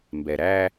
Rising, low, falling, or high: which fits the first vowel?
low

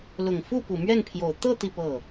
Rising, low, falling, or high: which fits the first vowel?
low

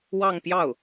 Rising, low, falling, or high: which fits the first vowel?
falling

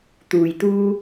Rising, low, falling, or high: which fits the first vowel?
low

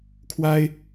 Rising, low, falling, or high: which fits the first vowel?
high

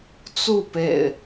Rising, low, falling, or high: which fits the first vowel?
falling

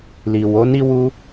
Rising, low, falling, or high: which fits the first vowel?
low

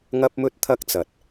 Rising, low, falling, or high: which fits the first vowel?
high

